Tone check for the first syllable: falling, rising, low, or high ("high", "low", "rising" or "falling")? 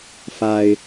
high